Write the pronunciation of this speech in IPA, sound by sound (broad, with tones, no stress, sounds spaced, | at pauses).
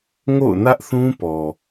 ŋ o̰˦˨ ʊ̯ n ä˦ ʔ θ ũ˦ p ɔ˨